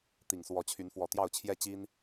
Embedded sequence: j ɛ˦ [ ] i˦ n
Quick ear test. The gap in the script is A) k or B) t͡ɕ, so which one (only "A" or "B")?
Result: B